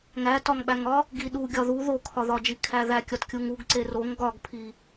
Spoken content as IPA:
ŋ æ t ɒ ŋ ɓ æ ŋ ɒ | ɡ i ɗ u ɡʲ ɒ ð u ð o kʰ ɒ ð ɒ d͡ʒ i kʰ æ ð æ kʲ ɒ t kʲ u ŋ u ɡ ǀ e r o ŋ ɡ ɒ ɡ pʰ i

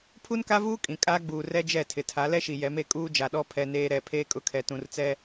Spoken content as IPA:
pʰ u˦ n k a˦ v uː˦ kʼ ĩ˨ kʼ aː˦ ɡ͡b uː˨ r ɛ˦ d͡ʒ ɛ˦˨ tʰ ɪ˨ tʰ a˨˦ l ɛ˦ ʃ i˨ j ɛ˨˦ m e˨ kʼ uː˦ d͡ʒ a˨ ɗ ɔ˦ pʰ ɛ˨ n eː˨ ɾ ɛ˨ pʰ eː˦ kʼ ʊ˦˨ kʰ ɛ˨ t ũ˨ r t͡s ɛ˦

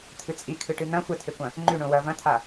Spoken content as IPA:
t̪ʰ ɨ t͡sʼ i kʰ ɨ ʈ ɨ n̪ ɐ̃ xʷ ɐ tʰ e kʷ ɐ̃ | ŋ͡ǃ ʉ ɳ õ w ɐ v ɐ̃ t̪ʰ a

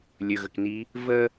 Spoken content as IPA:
lʲ ɵ ɣ ə k n i | v ə

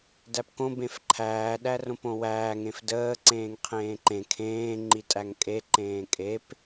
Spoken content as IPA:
d æ p k õ b ẽ f ǃʰ æː ɗ æ r õ p õ w æː ŋ ẽ f d əː ǀ ẽː ŋ qʰ ẽː ǃ ẽ kʰ ẽː ŋ͡ǃ i tʼ æ ŋ kʼ e ǃ ẽː kʼ e p

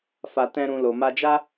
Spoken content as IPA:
f a˧ t ɛ̃˦ ɾ ũ˧ l o˨ m a˧ d͡ʒ a˦

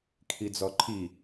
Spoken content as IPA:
kʰ i d͡z ɔ ǃʰ i

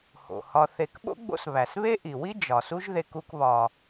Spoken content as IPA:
h o̰˩ h ɒ˨ θ e˨ k ɓ o̰˥ ɡ͡b o̰˦ s β æ˩ s β e˥ ʔ i˩ w i˥ d͡ʒ ɒ˩ s u˦ ʒ ð e˨ k u˨ k β ɒ˩

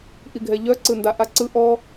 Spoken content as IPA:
ʔ i ɡʱ ɛ ʎ œ ǀ ɯ n d a ʔ a ǀ ɯ ʔ ɔ

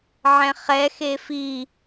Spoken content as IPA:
ʕ ɛ̃ χ ɛ x e f i

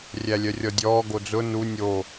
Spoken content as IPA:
rʲ æ lʲ œ rʲ ɔ dʲ ɔː ɡ o d͡z ʊ n u nʲ o

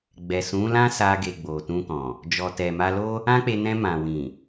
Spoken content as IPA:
ɡ͡b ɛ˨ s ũ˨˦ l ã˦ s a˧ ɡ e˨ ɡ͡b o˨ t ũ˧ k ɔ̃˨ | d͡ʒ ɔ˨ t ɛ˨ m a˧ l o˦ | ã˦ k͡p e˧ n ɛ̃˧ m ã˨ w ĩ˨

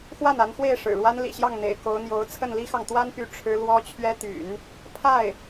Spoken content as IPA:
x w a˥˩ n a˧˥ n x w e˥˩ ɪ̯ ʂ ɻ̩˨˩ ɻ w a˥ n l ḭ˨˩ ɕ j ɑ˥˩ ŋ n̪ ḛ˨˩ ɪ̯ k o˧˥ ʊ̯ n̪ j o˧˥ ʊ̯ t͡sʰ ə˥˩ n l i˥ x ɑ˨ ŋ t̪ w a˥ n p y˧˥ ʈ͡ʂʰ ɻ̩˥ l w ɔ˥ t͡ɕʰ ɥ ɛ˥ t̪ y̰˨˩˦ n | pʰ a˥˩ ɪ̯

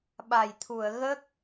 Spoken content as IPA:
ɓ a˨˩ j t̪ʰ u˨˩˨ ə̯ ɣ ə˦˥ k̚

